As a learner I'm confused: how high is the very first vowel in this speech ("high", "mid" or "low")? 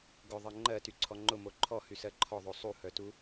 high